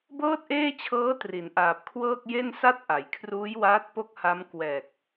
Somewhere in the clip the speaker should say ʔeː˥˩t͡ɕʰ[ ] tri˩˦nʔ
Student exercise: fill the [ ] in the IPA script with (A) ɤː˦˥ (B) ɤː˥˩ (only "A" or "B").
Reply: A